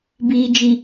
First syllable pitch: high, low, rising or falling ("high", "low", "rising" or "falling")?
low